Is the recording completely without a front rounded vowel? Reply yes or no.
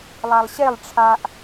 yes